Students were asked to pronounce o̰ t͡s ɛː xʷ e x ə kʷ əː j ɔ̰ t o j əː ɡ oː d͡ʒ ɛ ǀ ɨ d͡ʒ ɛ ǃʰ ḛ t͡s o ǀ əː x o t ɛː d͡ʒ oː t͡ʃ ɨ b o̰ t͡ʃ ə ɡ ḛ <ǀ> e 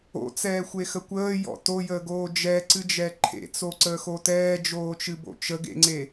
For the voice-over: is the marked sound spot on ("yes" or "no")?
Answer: no